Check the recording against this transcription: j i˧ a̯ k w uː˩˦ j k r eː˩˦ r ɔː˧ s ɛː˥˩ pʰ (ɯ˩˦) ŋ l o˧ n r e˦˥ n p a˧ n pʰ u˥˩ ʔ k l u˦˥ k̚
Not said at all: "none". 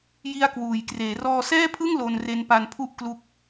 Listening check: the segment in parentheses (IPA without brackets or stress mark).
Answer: ɯ˥˩